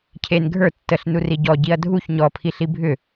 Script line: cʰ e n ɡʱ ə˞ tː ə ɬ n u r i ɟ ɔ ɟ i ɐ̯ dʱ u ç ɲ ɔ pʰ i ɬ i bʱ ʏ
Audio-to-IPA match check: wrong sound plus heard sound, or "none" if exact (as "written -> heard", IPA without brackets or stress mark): none